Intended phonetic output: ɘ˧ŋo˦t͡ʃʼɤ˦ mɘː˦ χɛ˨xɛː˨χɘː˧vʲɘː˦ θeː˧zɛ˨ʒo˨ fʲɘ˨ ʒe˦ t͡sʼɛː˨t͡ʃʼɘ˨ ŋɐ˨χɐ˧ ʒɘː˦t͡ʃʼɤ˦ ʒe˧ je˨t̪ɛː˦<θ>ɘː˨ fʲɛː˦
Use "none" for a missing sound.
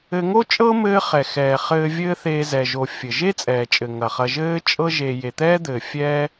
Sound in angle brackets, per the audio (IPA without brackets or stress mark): d̪